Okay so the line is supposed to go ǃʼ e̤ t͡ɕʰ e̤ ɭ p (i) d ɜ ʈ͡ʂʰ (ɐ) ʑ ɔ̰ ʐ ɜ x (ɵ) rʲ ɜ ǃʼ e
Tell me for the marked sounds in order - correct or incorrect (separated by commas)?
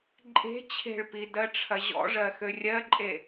correct, correct, incorrect